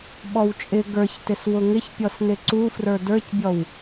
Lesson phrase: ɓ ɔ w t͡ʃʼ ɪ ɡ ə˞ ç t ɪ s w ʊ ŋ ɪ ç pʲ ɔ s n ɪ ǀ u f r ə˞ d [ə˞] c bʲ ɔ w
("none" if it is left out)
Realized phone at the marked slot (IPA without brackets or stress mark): ə˞